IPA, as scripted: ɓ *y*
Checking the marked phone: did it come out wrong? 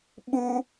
yes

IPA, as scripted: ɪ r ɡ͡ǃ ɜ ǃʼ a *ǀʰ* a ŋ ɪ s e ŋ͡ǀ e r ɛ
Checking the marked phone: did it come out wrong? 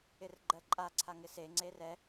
no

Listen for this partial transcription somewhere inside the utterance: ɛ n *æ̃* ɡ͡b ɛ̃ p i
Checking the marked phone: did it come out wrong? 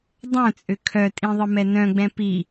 yes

